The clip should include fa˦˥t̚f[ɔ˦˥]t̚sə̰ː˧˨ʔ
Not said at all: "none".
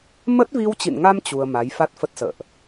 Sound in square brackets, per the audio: ə˦˥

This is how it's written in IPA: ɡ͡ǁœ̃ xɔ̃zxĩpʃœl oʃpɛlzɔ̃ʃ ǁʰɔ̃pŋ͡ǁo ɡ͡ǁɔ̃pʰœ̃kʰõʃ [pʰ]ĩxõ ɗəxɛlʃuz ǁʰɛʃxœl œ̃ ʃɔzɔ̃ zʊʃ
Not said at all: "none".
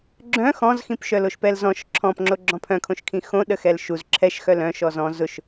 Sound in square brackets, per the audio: kʰ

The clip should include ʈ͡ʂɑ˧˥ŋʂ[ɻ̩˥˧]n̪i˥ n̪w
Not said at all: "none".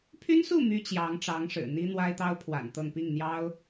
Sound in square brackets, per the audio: ɻ̩˨˩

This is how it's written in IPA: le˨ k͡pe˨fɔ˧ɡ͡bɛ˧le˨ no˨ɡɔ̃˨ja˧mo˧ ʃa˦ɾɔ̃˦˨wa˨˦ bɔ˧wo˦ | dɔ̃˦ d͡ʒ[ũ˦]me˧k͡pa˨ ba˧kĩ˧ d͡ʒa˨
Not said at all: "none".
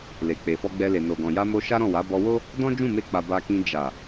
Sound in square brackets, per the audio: ũ˦˨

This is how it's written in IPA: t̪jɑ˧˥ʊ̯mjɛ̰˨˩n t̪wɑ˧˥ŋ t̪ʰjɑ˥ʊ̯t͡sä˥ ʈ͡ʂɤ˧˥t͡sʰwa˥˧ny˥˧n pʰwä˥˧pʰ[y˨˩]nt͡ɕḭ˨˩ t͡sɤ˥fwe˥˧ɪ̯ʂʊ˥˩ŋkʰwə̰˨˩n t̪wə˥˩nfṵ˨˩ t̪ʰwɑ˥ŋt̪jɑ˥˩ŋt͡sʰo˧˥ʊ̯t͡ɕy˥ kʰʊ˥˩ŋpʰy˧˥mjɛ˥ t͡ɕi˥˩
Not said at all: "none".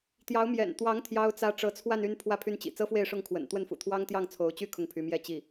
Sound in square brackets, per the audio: y˥˩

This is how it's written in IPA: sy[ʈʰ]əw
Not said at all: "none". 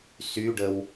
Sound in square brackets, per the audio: ɖ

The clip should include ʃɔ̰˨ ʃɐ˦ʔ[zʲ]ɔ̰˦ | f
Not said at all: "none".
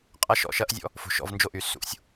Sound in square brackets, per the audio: zʲ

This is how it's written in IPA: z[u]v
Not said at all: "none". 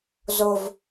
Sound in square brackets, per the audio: o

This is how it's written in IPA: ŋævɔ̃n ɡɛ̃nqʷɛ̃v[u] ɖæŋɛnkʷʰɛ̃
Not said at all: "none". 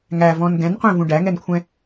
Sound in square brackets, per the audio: ũ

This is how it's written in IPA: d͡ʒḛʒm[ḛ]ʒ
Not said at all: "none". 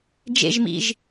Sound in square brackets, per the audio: ḭ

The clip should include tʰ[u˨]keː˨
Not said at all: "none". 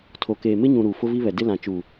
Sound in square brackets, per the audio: o˨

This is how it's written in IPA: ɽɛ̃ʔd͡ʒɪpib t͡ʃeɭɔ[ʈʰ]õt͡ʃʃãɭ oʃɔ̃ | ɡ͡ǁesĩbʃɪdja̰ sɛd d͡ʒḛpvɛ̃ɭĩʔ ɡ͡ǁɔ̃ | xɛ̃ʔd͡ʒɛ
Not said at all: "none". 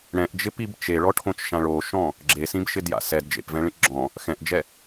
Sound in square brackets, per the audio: ʈʰ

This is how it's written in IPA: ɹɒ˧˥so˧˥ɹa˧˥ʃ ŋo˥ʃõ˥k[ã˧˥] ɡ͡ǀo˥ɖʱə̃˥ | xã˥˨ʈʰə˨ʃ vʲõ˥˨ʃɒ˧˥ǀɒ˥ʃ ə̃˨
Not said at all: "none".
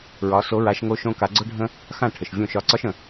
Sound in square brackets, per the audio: a˧˥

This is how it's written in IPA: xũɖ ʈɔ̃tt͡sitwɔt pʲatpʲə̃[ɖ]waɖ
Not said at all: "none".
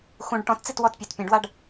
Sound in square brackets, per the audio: ɖ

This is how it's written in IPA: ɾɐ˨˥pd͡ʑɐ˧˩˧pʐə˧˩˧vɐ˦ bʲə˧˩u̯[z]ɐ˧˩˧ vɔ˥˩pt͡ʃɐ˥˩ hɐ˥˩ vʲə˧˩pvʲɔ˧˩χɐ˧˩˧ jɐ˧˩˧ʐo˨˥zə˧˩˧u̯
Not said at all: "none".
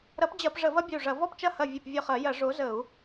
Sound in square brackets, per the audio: ʐ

